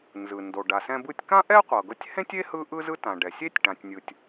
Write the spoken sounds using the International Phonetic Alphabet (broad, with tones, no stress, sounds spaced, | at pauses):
n z ɯ˩ n d o˩ ɖ a˩ s ɛ̃˧ b ɯ˧ tʲ k ã˥ ʔ ɛ˥ qʷ ɤ˩ ɡ ɤ˧ tʲ h ẽ˥ tʲ e˥ h ɯ˥ ʔ ɯ˥ z ɯ˥ t ã˩ ɖ ɛ˩ sʲ e˥ tʲ ʈ ã˩ tʲ nʲ ɯ˩ tʲ